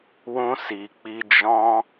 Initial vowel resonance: nasal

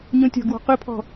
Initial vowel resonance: nasal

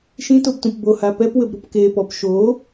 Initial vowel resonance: nasal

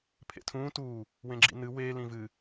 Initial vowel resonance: oral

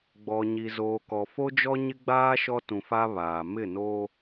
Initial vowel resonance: oral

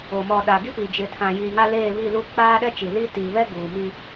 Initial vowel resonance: oral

